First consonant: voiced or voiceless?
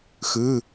voiceless